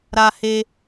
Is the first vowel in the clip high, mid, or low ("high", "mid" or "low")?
low